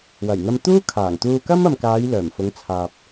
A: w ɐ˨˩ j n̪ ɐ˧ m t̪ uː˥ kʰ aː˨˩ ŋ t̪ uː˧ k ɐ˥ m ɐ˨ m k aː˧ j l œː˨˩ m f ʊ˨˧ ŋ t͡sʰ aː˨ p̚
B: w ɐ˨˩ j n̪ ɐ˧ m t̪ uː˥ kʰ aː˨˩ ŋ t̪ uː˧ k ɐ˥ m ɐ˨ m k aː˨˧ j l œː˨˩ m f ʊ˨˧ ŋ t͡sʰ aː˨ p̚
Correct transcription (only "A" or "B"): B